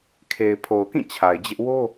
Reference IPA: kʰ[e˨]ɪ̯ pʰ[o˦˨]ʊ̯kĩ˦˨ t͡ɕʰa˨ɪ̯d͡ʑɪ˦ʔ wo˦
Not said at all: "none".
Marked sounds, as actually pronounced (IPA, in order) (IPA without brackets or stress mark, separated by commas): e˨, o˨